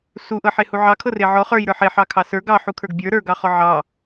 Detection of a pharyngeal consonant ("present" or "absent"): present